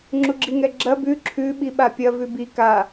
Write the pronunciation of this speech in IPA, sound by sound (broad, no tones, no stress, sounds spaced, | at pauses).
ŋ͡ǁ u ɡ͡ǁ i ŋ ɛ ɡ͡ǁ ɐ b ʉ ǁʰ ʉ ɓ i ɓ a pʲ ɐ v ʉ b i k a